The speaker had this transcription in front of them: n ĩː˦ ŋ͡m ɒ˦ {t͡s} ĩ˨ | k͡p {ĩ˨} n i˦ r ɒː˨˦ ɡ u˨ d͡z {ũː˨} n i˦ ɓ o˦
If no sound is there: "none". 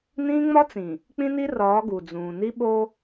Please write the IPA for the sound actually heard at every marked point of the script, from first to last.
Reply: t͡s, ĩ˦, ũː˨

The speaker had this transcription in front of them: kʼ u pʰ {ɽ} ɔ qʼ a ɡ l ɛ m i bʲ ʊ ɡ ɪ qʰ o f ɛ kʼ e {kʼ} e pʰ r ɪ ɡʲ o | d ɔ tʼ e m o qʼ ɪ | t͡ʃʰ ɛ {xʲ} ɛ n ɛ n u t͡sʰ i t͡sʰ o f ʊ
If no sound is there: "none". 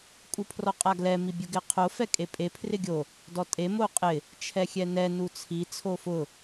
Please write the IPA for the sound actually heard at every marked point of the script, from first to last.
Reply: r, pʼ, xʲ

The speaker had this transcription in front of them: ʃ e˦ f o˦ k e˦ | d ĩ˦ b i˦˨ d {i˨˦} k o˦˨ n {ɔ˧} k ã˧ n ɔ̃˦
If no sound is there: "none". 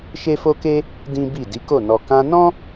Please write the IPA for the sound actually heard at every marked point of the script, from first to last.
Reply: i˨˦, ɔ˧

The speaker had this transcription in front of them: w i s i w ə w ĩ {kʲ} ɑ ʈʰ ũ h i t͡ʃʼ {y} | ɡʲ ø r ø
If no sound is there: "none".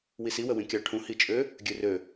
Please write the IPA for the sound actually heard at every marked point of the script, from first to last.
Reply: kʲ, ø

